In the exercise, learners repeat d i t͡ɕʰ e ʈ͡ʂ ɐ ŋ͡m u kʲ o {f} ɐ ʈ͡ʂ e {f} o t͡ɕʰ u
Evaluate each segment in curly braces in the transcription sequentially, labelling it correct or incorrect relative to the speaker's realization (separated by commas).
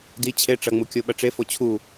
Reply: incorrect, correct